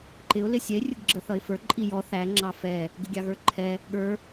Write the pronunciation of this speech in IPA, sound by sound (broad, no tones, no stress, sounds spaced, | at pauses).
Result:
ǃ ɪ ʊ̯ l ɪ sʲ ɛ ɪ̯ rʲ ʊ ɡ ɡ͡ǁ ə θ ʌ ɪ̯ f ə˞ ǃʼ i j ɔ θ æ ŋ͡ǁ ɑ f ɛ | ɡ ɪ ɡʲ ɑ ɣ ə˞ ǃʰ ɛ | ɠ ə˞